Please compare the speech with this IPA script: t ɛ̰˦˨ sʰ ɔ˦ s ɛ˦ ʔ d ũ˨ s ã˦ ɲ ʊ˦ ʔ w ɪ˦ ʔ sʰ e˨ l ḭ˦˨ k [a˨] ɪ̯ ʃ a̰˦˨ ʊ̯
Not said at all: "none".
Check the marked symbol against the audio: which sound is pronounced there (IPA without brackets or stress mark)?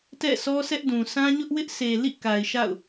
a˨